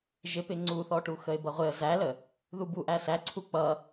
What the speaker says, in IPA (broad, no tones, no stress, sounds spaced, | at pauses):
ʒ ɪ p ɪ ŋ͡ǀ u θ ɔ ʈ u x ə ɪ̯ b ʌ ʁʷ ɪ ə̯ z æ l ə | ð u b u ʔ æ s æ ǀʰ u k͡p ʌ